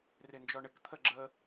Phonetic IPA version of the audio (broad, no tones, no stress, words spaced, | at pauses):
rɪnd͡ʒɔɳɪkt̪ʰə ɡ͡ǁə